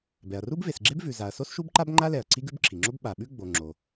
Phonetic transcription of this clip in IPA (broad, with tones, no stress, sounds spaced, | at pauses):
b ɛ˩ ɐ̯ r u˥ b v e˩ s ɡ͡ǁ e˥ b v ʉ˩ z a˩ ɐ̯ s o˥ s ʃ u˥ b ǃ a˥ b ŋ͡ǃ a˥ l ɛ˩ ɐ̯ ǀʰ i˥ ɡ ʉ˥ b ǁʰ i˩ ŋ͡ǁ o˥ b ɓ a˩ ɓ ʉ˥ ɡ͡b o˩ ŋ͡ǁ o˩